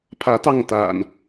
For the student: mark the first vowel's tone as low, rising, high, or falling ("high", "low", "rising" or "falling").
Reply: rising